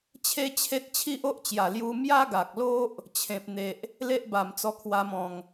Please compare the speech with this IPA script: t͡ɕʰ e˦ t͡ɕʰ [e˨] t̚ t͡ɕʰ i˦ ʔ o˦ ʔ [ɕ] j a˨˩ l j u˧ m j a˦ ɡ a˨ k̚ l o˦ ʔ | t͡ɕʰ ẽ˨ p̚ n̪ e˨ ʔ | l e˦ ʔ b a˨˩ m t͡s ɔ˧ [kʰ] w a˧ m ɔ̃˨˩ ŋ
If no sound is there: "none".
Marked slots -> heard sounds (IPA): e˦, t͡ɕ, kʰ

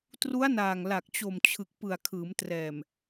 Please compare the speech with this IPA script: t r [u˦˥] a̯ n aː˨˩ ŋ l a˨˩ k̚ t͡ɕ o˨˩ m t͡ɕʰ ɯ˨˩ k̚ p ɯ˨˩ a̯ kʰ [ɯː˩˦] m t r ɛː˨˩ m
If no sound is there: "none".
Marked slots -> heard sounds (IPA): u˦˥, ɯː˩˦

